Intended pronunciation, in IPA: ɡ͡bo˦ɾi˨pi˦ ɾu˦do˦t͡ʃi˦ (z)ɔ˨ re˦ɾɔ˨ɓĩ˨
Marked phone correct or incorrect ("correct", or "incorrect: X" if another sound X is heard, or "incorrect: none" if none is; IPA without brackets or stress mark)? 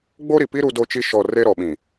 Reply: incorrect: ʃ